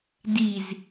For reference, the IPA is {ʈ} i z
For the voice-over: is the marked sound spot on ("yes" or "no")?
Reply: no